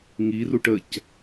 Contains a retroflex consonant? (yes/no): yes